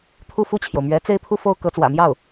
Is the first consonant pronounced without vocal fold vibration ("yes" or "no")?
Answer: yes